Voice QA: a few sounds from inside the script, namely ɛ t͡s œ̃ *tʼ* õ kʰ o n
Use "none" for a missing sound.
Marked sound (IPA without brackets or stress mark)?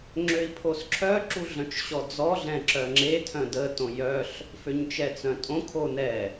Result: tʼ